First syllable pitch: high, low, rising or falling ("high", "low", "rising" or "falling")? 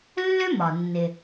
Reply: high